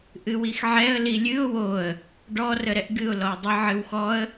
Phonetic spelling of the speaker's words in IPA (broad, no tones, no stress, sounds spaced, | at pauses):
ʔ ɨ w i x ʕ ɛ ə̯ l i lʲ ɨ ʊ̯ w o ə̯ | ɖ ɔ r ə ɾ ɛ ʔ ɡ ɨ ʊ̯ l ɔ ə̯ dˤ ə ʕ ɨ w x ɔ ə̯